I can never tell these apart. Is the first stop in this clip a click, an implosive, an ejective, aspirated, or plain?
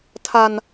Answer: aspirated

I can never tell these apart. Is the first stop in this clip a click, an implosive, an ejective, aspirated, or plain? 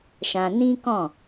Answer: plain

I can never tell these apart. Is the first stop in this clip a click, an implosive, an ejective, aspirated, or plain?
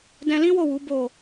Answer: plain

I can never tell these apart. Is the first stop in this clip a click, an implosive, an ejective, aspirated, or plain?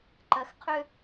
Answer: click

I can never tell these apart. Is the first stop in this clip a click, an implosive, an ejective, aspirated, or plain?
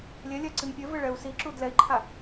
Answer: click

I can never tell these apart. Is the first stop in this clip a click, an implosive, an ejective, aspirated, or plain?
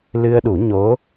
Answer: implosive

